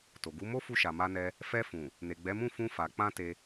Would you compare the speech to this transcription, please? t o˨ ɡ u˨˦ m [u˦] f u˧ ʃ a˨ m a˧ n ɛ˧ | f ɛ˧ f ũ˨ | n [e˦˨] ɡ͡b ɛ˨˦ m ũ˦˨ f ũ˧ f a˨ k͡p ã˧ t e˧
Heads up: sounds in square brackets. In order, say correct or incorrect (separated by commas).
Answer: incorrect, incorrect